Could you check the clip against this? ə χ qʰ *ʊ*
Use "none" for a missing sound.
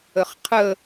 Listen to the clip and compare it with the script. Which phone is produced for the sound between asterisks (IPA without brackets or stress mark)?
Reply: ə